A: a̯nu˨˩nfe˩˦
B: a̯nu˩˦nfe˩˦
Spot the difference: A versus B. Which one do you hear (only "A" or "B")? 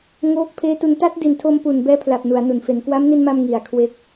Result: B